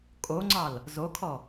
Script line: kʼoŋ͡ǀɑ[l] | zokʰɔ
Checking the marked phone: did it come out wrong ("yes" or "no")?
no